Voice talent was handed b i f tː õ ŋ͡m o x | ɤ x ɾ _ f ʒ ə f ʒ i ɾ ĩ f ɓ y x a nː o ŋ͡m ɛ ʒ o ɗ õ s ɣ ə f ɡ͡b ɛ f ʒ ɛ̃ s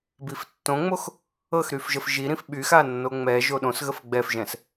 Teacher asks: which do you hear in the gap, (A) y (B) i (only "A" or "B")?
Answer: A